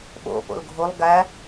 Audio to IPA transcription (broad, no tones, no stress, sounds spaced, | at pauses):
ɓ o̰ p o̰ l ɡʱ u lˠ ɡ æ